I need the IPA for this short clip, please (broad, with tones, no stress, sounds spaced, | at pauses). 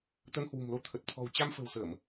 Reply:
t̪ ə˧ n h w ṳ˨˩ m l o˧ t̪ʰ ə˨˩ t̚ t̪ʰ ɔ̤˨˩ w t͡ɕ a˧ m f ə̤˨˩ w s əː˧˩˨ m